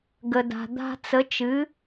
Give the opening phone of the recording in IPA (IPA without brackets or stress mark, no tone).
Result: ɡ